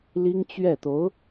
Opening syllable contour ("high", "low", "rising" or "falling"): high